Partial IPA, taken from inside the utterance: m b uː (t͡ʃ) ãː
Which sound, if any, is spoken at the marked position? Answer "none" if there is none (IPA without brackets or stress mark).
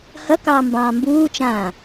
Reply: t͡ʃ